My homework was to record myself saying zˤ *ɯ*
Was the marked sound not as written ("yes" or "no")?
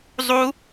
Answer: yes